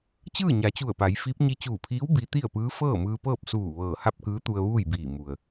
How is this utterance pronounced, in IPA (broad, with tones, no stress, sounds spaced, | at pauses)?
t͡ɕ ɯː˥˨ ɲ a˩˧ t͡ɕ u˧˩ ə̯ p a˩˧ j f i˧˥ p̚ ɲ i˧ t͡ɕ uː˧˩ pʰ iː˧˥ w b i˧˥ t̪ i˥˨ ə̯ p ɯː˧˥ f ɤː˥˨ m ɯː˧ p ɤː˥˨ p̚ s uː˧˩ ʋ ɤː˧˩ h a˥˨ p̚ k ɯː˧˥ t̪ u˧ ə̯ ʋ uː˥˨ j b iː˧˩ m u˩ ə̯